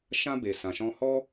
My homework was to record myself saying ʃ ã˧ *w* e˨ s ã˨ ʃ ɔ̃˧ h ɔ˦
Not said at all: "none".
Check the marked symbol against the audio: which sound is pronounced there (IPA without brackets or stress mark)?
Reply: b